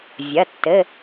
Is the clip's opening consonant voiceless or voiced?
voiced